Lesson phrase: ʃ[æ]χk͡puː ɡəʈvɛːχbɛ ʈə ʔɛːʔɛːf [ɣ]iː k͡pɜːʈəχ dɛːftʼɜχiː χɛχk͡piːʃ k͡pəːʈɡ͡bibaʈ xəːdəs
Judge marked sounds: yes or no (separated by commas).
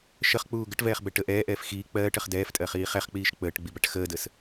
no, no